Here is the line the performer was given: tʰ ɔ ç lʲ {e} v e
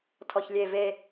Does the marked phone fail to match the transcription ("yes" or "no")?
no